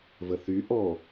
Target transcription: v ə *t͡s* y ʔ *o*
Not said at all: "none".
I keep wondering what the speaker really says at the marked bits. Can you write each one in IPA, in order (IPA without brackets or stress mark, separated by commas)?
θ, ɔ